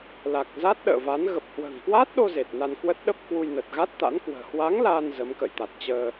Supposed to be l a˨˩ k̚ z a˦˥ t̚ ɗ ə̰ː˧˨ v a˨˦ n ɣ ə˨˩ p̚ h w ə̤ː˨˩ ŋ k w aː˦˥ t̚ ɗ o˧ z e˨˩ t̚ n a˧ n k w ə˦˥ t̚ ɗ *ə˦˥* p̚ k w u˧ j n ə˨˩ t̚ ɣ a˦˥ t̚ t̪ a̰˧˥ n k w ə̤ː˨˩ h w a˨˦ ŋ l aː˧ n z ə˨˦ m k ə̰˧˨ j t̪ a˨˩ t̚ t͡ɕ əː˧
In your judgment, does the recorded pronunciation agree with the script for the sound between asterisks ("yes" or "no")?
yes